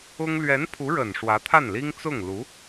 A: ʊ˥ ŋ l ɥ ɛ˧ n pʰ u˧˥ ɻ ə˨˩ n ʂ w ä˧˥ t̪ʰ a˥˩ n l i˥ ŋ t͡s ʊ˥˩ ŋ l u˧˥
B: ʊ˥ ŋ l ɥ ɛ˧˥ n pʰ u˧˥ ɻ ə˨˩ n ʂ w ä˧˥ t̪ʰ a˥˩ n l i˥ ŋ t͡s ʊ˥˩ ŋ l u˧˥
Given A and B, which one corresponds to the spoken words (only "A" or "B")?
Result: B